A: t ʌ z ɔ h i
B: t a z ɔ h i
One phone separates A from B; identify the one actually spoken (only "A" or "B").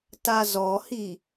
B